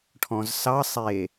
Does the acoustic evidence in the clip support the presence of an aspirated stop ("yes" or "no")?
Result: yes